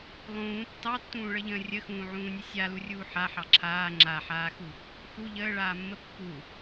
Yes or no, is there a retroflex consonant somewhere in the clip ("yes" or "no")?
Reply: yes